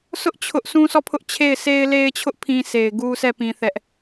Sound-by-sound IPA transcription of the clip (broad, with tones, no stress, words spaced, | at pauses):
sʰʊ˦ʔ t͡ɕʰʊ˦ʔ sũ˦sʰɔ˦˨pʰʊ˦ʔ t͡ɕʰe˦˨ɪ̯sʰe˦ɪ̯ le˦ɪ̯t͡ɕʰʊ˦ʔ pʰĩ˦ sʰe˨ɪ̯ɡu˦sɛ˦˨ pĩ˦θɛ˦ʔ